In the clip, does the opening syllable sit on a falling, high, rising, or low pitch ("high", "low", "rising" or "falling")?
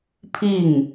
falling